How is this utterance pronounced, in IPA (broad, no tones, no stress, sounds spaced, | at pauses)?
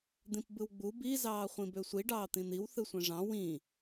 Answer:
d̪ ĩ p b ɯ w ɡ͡b u b i z ɑː χʷ ĩ b ø sʷ i ɖ ɑː t̪ ĩ n̪ i w θ ɯ sʷ ẽ ʐ ɑ̃ w ĩ